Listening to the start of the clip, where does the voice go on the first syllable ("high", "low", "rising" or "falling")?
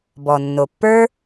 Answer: low